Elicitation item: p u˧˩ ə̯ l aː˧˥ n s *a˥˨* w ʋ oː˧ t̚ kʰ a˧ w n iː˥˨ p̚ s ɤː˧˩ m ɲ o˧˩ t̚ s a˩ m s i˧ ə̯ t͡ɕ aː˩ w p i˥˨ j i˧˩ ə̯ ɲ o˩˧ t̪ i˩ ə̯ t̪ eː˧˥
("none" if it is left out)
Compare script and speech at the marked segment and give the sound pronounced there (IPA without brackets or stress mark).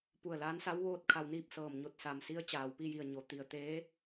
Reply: a˧˥